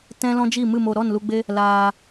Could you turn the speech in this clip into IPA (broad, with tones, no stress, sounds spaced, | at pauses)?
t ɛ̃˦ l ɔ̃˦ d͡ʒ i˦˨ m ɨ˦˨ m o˧ ɾ ɔ˦˨ n l u˧ ɡ͡b e˦ | l aː˧